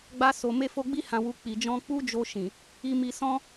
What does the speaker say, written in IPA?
ɡ͡b a˧ s o˨ m e˧ f o˧ ɡ͡b i˧ h ã˨ w u˨ k͡p i˨ d͡ʒ ɔ̃˧ k͡p u˦ d͡ʒ o˧ ʃ ĩ˨ | i˧ m i˧ s ɔ̃˦

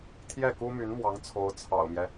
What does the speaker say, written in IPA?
t̪ʰ j ɛ˥˩ k u˥ m y˧˥ n m w ɑ˧˥ ŋ t͡sʰ o˧˥ ʊ̯ t͡sʰ ɑ̰˨˩ ʊ̯ m j ɛ˦

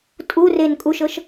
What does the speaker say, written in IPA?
tʼ u r e n kʼ u ʃ ɤ ʃ

